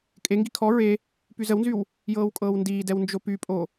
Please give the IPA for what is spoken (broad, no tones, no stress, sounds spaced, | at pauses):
kʼ e ŋ ɡ i kʰ ɔ ɹ e | p y z ə w n z y w | j ɤː w kʼ ɤː w n d iː d ɛ w n d͡ʒ o p y pʼ o